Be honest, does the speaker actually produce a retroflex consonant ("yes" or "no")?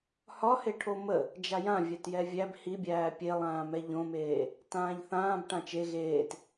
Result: yes